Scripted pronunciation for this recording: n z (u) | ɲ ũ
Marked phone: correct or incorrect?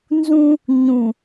incorrect